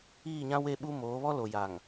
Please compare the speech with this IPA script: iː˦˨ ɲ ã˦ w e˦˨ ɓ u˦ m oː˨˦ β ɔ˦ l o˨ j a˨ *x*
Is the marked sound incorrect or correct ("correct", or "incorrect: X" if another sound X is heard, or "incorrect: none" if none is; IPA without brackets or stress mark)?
incorrect: ŋ